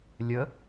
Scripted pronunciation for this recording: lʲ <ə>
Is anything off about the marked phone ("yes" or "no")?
no